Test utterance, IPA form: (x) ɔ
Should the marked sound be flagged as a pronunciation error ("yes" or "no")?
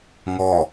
yes